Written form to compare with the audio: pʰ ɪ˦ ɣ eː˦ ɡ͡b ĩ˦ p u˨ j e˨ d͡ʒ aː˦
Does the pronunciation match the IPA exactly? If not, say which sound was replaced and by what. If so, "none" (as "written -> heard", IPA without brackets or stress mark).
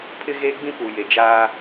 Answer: none